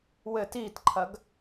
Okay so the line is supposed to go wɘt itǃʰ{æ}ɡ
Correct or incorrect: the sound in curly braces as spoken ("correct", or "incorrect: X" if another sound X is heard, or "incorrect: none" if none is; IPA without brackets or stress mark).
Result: incorrect: ɐ